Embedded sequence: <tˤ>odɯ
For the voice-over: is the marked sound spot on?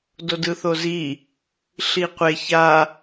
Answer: no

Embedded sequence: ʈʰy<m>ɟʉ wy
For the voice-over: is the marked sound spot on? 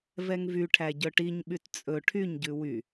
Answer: no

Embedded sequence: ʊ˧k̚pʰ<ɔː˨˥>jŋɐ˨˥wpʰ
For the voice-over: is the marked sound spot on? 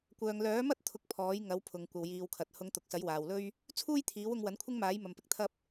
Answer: yes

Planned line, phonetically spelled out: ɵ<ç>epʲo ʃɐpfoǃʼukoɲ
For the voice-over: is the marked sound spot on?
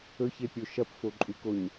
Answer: yes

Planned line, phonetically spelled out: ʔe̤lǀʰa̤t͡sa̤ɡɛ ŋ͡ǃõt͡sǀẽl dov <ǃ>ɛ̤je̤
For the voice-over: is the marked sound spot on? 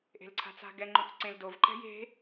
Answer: yes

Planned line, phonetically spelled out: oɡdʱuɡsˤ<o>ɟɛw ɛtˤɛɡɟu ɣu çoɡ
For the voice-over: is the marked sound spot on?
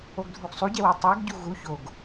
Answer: no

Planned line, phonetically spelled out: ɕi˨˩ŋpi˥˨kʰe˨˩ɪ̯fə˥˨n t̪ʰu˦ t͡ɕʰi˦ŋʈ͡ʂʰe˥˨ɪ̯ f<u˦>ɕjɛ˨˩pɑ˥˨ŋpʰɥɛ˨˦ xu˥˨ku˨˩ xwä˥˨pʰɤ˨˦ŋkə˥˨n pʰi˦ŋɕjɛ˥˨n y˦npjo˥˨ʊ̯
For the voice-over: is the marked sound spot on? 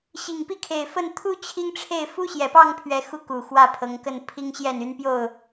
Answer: yes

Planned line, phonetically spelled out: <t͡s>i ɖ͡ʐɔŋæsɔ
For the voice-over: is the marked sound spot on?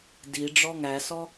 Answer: no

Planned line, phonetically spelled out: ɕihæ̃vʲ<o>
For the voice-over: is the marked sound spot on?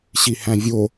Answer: yes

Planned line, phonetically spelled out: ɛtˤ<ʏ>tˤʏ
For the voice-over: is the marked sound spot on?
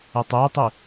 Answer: no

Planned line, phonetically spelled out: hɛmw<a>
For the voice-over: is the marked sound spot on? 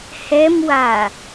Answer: yes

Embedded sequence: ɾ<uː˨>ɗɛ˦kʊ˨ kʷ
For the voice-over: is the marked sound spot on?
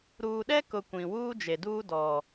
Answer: yes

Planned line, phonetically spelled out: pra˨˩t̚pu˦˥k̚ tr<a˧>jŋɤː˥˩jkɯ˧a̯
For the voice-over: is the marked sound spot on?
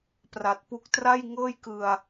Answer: no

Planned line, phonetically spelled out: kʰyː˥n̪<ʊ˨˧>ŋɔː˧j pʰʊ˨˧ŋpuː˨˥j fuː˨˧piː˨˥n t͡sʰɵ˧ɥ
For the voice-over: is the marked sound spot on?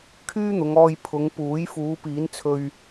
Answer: yes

